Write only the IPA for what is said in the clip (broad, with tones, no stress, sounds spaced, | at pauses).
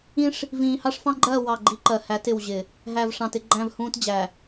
ĩ˦ ʂ | v ĩː˨ h ɑ˦ ʂ f ɑ̃˦ ɡ͡ǃ ɜː˦˨ w ɑ˦˨ ɡ͡ǃ i˦ ǃ ɜ˨ h æ˨˦ t ɪ˨ w ʑ ɪ˨ | ɦ æ˨ v ʂ ɑ̃˨ t ɪ˦ ɡ͡ǃ æ̃˦˨ v h ũː˦ t d͡ʑ æ˨